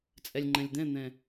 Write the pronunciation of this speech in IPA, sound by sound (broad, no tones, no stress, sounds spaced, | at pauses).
t͡sʼ ɛ lʲ ŋ͡ǃ ɛ̃ lʲ d̪ ɛ̃ n̪ ɛ̃